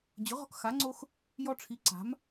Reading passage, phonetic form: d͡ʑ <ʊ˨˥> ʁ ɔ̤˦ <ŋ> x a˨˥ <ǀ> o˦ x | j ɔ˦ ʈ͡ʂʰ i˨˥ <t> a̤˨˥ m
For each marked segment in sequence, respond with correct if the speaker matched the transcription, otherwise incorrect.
correct, incorrect: k, incorrect: ŋ͡ǀ, incorrect: ǀ

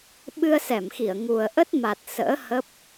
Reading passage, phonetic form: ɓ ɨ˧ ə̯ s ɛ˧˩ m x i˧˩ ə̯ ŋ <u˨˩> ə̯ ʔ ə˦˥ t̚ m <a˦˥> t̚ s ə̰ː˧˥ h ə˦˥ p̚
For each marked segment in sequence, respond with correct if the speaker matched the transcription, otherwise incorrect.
correct, incorrect: a˨˩

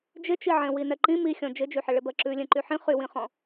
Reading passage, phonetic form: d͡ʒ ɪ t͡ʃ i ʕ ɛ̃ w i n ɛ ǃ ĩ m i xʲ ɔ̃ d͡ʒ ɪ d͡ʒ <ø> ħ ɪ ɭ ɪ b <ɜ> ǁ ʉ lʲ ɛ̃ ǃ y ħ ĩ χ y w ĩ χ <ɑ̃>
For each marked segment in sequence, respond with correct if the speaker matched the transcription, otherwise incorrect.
incorrect: y, correct, incorrect: ɔ̃

